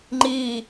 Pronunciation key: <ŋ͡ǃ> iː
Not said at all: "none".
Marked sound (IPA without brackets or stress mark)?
ŋ͡ǃ